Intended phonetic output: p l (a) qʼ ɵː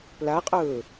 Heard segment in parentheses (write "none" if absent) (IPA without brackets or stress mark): a